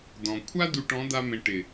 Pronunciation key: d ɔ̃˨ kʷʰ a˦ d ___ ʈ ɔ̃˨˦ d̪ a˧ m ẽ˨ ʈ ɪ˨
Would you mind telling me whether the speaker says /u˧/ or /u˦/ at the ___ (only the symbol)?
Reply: u˧